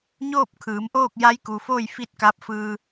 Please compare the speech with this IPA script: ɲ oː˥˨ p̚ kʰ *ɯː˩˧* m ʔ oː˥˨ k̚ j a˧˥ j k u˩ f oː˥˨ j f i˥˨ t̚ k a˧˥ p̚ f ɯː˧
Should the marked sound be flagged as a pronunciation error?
no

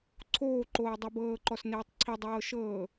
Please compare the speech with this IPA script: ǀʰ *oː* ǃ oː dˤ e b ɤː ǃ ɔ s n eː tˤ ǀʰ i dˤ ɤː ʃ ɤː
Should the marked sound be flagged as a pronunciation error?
no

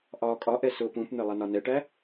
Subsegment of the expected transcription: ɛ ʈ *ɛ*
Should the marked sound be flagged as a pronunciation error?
yes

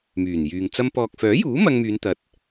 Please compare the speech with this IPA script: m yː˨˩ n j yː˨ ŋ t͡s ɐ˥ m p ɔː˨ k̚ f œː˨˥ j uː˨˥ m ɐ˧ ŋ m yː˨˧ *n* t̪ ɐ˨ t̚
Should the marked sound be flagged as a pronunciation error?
no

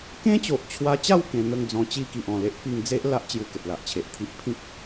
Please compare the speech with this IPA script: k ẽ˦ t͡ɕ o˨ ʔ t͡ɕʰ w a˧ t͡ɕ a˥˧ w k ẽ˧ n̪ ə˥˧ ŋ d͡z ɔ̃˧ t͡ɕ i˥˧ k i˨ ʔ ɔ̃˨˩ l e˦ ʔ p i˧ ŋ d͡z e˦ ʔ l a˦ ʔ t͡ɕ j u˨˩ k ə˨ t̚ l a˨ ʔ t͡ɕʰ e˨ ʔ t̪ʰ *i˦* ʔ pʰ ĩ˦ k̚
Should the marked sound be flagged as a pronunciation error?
no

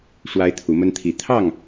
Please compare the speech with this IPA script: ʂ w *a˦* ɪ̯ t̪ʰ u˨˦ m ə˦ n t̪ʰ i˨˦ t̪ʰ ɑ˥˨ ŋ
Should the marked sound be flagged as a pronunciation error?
no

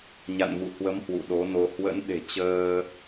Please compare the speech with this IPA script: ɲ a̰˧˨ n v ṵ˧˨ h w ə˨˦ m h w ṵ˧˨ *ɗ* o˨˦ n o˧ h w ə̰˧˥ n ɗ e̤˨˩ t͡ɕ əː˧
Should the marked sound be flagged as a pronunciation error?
no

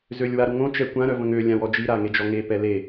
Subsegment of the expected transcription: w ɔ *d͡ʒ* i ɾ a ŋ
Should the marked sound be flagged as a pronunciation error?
no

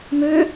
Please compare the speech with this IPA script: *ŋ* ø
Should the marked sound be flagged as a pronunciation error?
yes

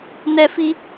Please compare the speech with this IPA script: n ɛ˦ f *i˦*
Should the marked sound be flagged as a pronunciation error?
no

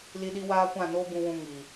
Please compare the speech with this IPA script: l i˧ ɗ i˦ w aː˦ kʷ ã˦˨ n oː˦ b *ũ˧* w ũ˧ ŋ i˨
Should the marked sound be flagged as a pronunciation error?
no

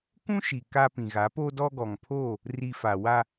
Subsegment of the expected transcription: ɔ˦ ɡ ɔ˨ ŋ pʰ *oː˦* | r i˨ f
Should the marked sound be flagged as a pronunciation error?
yes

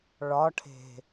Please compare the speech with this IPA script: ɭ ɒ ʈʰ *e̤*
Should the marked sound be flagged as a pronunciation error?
no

